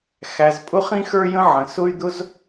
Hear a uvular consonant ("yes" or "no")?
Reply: yes